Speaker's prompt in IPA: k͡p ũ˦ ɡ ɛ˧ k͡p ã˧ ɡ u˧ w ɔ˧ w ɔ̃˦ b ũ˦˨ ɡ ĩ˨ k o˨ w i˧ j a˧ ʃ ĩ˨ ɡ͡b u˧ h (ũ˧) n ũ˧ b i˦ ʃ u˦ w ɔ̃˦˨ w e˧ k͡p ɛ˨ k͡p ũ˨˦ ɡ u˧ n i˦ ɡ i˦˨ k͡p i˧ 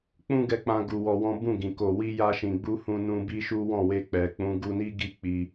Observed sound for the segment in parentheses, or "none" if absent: ũ˧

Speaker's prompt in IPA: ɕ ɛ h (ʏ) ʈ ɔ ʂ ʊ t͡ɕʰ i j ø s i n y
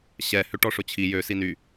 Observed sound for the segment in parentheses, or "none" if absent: ʏ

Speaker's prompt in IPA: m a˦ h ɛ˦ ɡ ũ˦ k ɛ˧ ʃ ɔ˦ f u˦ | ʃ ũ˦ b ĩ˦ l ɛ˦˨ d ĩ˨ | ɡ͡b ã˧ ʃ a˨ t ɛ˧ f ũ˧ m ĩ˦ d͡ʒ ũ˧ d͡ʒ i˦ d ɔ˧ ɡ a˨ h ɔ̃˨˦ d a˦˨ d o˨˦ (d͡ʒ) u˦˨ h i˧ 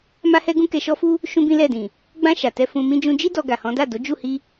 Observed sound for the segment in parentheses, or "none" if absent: d͡ʒ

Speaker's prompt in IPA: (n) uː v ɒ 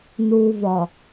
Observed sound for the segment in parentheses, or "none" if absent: n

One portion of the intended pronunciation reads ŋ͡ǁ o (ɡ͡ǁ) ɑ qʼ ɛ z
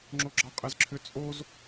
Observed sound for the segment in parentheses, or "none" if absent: ɡ͡ǁ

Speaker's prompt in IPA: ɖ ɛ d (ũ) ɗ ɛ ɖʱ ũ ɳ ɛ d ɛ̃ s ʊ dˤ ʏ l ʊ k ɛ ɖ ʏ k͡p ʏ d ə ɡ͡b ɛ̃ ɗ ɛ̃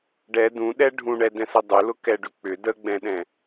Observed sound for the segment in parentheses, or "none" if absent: ũ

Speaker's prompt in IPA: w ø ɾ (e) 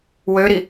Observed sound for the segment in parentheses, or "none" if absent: i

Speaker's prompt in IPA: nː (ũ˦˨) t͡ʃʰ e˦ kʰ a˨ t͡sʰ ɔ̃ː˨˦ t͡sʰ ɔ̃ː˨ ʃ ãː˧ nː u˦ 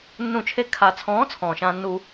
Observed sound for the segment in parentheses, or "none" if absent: ũ˦˨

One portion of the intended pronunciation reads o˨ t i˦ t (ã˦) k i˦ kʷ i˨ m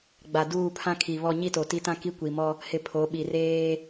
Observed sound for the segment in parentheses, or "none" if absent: ã˦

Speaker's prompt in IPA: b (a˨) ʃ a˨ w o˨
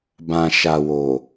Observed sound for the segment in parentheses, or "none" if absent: ã˨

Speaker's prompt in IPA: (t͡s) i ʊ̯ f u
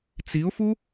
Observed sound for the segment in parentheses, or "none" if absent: t͡s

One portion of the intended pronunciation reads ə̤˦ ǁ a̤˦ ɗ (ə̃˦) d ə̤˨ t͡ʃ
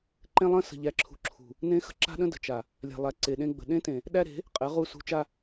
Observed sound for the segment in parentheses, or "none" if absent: ə̃˦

